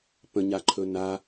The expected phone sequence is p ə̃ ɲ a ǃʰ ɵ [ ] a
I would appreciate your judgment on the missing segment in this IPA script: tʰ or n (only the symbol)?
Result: n